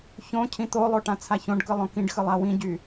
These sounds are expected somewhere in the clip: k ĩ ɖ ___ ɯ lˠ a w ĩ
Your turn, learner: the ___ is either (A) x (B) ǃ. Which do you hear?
A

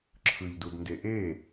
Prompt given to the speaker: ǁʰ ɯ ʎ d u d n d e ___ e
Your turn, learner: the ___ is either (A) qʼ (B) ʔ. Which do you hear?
B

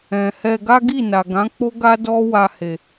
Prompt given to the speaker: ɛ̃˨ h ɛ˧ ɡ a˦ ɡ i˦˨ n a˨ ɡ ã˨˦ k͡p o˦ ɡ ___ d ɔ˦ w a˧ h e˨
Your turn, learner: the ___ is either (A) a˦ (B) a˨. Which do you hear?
A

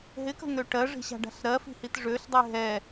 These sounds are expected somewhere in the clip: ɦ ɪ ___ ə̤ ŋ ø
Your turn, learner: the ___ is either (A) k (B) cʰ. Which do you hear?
A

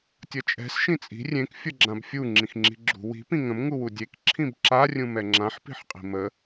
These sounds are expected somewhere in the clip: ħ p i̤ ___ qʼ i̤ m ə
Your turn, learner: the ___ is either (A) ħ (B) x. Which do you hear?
A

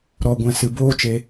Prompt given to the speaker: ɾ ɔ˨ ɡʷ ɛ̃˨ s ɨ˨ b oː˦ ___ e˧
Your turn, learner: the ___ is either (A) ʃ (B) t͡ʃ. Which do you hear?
B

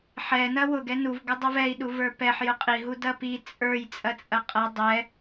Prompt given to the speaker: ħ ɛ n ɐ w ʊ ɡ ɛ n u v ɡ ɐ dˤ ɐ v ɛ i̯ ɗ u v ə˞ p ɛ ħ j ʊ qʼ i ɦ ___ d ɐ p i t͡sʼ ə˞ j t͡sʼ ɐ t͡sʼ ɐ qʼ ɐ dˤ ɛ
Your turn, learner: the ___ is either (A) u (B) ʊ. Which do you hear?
A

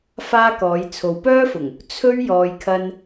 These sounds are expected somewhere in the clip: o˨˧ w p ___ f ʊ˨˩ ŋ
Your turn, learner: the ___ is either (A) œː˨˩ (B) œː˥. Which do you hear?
B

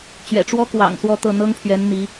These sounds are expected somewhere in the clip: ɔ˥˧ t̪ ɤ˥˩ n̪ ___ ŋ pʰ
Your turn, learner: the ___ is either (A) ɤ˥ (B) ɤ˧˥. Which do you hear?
A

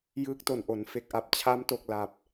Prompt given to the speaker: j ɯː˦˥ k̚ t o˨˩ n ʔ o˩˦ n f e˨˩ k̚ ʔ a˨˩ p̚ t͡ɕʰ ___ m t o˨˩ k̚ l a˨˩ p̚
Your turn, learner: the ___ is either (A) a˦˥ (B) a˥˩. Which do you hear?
A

